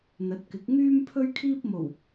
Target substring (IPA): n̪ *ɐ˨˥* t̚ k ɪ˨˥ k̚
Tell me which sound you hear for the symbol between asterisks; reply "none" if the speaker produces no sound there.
ɐ˨˥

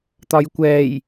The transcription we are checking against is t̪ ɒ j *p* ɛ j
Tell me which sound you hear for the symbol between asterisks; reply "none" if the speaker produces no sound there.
kʷ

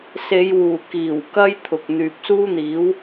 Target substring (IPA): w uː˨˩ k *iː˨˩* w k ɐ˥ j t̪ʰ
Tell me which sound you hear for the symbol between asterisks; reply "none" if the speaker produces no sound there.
iː˨˩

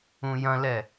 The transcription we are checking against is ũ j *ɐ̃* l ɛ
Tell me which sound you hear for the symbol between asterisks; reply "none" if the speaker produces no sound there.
ɐ̃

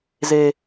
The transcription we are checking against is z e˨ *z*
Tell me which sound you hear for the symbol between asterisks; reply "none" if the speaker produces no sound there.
none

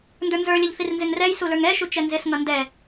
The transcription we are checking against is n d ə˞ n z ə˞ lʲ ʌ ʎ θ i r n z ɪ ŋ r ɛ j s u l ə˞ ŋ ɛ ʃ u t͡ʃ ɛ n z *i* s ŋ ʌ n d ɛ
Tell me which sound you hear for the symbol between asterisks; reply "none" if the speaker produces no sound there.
ɪ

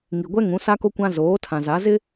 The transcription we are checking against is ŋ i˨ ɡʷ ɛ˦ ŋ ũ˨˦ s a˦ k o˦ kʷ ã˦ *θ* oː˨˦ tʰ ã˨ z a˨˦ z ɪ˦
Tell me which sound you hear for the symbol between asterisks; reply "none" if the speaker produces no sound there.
z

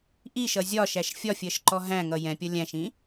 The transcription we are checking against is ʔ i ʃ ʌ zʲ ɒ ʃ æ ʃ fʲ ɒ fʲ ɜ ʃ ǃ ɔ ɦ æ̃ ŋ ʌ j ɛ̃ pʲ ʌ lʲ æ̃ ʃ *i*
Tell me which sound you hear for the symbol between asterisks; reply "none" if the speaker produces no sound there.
ĩ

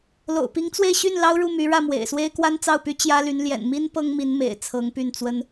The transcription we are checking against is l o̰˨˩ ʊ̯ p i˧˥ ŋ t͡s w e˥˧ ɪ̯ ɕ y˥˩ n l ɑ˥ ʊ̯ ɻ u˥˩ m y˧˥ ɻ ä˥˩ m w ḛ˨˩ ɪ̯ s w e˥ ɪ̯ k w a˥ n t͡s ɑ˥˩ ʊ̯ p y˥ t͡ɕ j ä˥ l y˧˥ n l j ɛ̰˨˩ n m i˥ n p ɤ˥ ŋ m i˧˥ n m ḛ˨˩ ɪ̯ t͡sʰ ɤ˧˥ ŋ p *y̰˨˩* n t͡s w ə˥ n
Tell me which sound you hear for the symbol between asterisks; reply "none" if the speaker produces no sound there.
y˥˩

